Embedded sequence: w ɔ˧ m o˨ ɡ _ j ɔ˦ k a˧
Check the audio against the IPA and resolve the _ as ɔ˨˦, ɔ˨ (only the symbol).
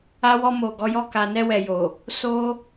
ɔ˨˦